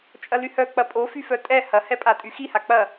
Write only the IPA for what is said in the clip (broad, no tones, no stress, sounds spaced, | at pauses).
t͡ʃʼ ɐ l y h œ k͡p ɐ pʼ o f y f œ tʼ ɛ h ɐ h ɛ pʼ a tʼ y x i h a k͡p ɐ